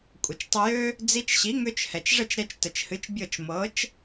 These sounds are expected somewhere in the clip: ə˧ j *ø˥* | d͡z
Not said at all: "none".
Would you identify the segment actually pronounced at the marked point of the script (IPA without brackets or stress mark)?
ø˥